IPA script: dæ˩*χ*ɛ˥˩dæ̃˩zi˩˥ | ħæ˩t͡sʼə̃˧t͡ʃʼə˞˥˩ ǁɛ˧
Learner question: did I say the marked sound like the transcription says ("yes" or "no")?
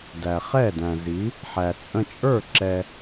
yes